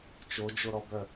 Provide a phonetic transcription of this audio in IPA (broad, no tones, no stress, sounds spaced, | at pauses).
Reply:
t͡ʃ o d͡ʒ o ɾ ɔ b œ